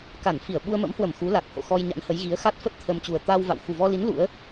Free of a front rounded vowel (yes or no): yes